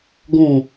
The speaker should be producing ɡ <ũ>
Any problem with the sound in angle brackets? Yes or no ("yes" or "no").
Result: no